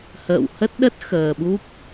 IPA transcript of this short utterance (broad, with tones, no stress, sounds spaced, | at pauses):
h ə̰ː˧˨ w h ə˦˥ t̚ ɗ ə˦˥ t̚ x əː˨˩ ɓ u˦˥ p̚